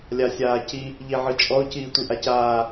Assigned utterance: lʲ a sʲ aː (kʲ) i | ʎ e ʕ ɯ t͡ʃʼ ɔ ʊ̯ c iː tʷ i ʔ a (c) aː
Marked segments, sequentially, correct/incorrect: incorrect, correct

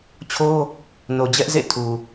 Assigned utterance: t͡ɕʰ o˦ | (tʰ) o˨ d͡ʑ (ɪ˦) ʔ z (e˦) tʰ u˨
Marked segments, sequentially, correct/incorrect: incorrect, incorrect, incorrect

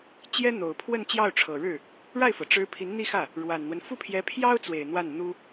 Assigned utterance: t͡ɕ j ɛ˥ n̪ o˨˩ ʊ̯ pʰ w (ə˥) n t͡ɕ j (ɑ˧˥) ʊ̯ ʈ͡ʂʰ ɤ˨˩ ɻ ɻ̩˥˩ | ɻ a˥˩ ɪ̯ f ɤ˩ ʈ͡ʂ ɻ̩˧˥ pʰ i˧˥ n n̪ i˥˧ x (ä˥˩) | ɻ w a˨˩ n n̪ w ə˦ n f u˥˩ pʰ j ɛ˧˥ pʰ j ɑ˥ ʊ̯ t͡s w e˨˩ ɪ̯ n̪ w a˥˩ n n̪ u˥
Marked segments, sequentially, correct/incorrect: incorrect, incorrect, correct

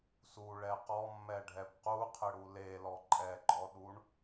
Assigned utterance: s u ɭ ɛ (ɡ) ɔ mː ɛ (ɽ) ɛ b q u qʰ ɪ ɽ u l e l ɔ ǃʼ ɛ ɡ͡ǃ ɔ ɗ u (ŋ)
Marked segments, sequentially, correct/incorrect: incorrect, incorrect, incorrect

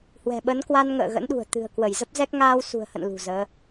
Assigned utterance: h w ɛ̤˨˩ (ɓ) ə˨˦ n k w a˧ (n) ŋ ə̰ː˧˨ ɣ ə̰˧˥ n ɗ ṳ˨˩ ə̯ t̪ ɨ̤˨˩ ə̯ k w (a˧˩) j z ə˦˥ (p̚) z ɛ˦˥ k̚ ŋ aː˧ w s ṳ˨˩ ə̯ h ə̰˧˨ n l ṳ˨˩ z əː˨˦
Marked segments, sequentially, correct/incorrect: correct, correct, incorrect, correct

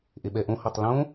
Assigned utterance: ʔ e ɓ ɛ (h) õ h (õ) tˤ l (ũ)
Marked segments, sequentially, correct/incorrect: incorrect, incorrect, incorrect

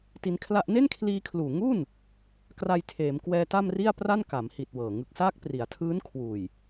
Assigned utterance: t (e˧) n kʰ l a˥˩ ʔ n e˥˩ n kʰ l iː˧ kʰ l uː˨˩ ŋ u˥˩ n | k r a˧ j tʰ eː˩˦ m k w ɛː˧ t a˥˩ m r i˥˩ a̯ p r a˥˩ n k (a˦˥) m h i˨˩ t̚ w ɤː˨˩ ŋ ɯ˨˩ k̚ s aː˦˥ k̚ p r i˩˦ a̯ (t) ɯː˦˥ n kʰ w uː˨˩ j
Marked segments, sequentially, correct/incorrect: incorrect, incorrect, incorrect

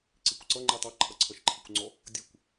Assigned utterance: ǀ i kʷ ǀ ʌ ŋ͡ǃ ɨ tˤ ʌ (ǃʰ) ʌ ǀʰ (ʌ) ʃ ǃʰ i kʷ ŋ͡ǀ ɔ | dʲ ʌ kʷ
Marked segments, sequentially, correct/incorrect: correct, correct

